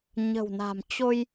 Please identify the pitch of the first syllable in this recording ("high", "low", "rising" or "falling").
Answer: low